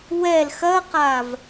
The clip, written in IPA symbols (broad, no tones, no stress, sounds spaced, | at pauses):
w ɛ l x ɐ q a v